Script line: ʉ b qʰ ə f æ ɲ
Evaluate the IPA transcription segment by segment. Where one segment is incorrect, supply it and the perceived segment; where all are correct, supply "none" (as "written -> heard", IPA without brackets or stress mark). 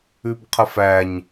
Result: none